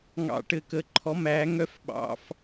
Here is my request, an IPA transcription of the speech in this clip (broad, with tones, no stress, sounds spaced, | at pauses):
ŋ ɑ̰˧˩ ʈ ɘ˧˩ k ə˧˩ ǃʰ ɔ˨˥ m æː˨˥ ŋ œ˥˧ f ɓ ɑ̰˧˥˧ f